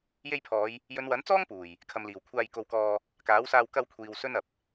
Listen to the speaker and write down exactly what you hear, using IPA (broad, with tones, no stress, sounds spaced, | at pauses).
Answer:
j e˧ j pʰ ɔː˨˧ j | j ɵ˨˧ n w ɐ˨˥ n t͡s ɔː˥ ŋ p uː˨˩ j | kʰ ɐ˨ m l iː˨˩ w kʷʰ aː˧ j k o˧ w k ɔː˧ | k aː˨˥ w s aː˧ w k ɐ˧ w kʷʰ iː˨ w s ɵ˥ n ɐ˨ p̚